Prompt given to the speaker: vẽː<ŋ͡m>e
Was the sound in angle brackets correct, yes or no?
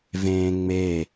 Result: yes